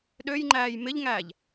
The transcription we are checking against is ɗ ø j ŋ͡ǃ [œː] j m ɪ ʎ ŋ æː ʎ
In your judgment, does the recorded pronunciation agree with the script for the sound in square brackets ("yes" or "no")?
no